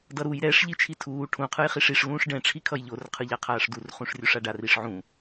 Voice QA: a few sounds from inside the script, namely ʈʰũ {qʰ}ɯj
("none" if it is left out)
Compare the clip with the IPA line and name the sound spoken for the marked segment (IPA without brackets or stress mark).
qʰ